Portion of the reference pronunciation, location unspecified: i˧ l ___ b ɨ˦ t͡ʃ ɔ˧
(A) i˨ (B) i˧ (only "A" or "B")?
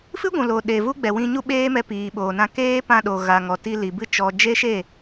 A